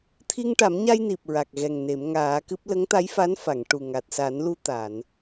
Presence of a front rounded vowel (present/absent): absent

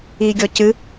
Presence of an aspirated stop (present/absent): absent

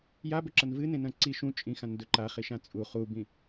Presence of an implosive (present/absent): absent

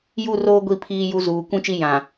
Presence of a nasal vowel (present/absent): present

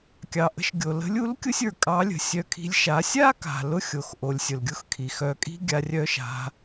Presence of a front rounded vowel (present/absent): present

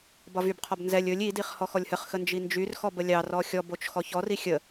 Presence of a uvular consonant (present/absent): present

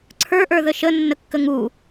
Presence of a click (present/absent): present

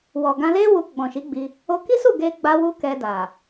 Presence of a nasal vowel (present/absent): present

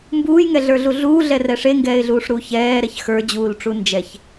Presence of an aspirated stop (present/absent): absent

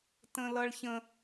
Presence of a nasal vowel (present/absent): present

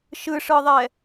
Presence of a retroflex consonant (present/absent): present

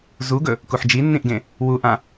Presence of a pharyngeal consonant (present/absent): present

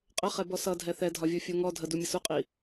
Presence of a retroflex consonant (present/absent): absent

